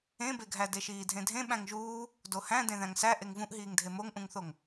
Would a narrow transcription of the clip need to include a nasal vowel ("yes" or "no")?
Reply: yes